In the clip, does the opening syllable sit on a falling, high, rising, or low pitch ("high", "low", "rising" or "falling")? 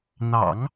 low